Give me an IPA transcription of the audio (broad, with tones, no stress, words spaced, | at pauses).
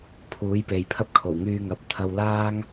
pʰuː˨˥jpe˨jpʰɐ˥p̚kʰo˨˩w ŋyː˧ŋɐ˨˥p̚ t̪ʰɐ˧wlaː˥ŋ